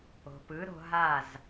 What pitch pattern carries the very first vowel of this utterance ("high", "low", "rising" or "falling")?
low